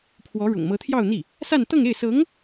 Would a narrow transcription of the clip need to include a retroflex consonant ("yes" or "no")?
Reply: yes